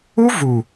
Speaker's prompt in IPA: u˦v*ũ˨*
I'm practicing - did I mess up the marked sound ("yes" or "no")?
yes